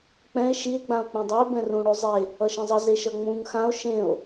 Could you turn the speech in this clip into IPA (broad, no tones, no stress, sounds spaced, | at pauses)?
k͡p ɛ̃ e̯ ʃ i e̯ ɡ͡b ã o̯ k͡p ẽ dˤ ʌ e̯ b ɛ̃ r ũ ɽ o zˤ e | ʌ ʃ ẽ zˤ ʌ z e ʃ ʌ ŋ͡m ũ ŋ x ã o̯ ʃ ẽ o̯